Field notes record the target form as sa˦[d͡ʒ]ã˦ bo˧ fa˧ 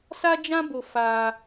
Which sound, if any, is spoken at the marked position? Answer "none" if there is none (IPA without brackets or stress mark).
d͡ʒ